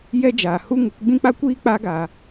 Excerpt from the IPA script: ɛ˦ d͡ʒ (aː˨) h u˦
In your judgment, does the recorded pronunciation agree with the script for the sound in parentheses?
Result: yes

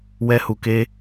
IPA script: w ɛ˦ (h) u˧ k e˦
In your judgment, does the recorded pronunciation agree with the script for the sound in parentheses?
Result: yes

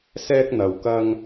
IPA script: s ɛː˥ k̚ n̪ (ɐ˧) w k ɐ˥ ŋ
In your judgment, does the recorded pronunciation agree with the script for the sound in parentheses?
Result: yes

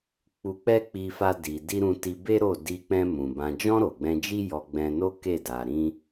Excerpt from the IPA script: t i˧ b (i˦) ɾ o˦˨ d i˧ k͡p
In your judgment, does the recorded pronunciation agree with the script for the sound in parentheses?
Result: no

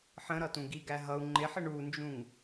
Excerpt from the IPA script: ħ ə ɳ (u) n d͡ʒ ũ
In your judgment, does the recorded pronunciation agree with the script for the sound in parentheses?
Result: yes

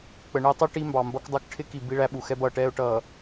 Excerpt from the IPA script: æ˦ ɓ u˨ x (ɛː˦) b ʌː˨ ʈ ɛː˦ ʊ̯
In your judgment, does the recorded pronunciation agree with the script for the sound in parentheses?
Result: no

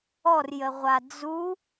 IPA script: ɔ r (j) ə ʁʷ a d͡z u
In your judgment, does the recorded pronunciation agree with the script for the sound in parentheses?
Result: yes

